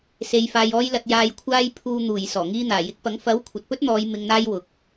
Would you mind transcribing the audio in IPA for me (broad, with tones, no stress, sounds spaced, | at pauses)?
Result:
s e˨ j f aː˨ j ɔː˧ j l ɐ˨ t̚ j aː˨ j kʷʰ aː˧ j pʰ uː˨ n̪ uː˨˩ j s ɔː˨˩ ŋ iː˧ n̪ aː˨˩ j ɪ˨˥ k̚ p ɐ˨˥ ŋ f ɐ˨˥ w kʷʰ ɐ˨ t̚ p ɵ˥ t̚ n̪ ɔː˨˧ j m ɪ˧ ŋ n̪ aː˥ j w ʊ˨ k̚